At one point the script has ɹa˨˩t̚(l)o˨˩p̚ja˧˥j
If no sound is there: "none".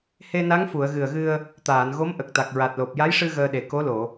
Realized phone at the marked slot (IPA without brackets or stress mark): l